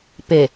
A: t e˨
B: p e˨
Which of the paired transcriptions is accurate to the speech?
B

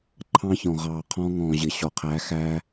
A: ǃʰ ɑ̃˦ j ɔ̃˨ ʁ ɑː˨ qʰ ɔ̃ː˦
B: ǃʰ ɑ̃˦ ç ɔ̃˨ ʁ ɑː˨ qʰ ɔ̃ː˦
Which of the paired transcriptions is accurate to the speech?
B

